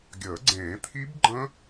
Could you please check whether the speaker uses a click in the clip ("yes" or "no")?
yes